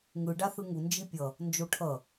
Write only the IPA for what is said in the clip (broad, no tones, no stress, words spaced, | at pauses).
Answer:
ŋɯ ɖaθɯŋu nd͡ʒipʲʌ | nd͡ʒoʈʰʌ